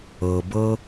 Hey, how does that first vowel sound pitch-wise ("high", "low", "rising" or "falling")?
low